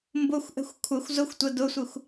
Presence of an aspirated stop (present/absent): present